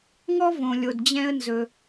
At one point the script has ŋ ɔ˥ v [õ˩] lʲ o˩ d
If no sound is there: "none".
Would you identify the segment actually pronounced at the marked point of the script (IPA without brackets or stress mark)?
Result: õ˩